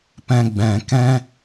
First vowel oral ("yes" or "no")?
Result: no